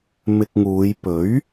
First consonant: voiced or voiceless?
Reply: voiced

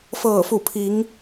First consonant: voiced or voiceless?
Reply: voiceless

